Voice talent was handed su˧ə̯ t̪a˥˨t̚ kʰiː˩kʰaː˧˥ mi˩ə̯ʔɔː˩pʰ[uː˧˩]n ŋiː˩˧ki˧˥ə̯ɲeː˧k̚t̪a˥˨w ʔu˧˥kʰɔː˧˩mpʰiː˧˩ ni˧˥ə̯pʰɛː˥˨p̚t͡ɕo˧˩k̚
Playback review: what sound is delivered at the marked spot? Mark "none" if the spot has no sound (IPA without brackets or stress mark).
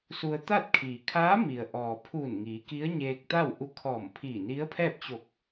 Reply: uː˧˩